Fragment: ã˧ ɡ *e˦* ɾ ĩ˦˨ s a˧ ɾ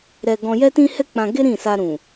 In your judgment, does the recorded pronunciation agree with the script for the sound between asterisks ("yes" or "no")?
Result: yes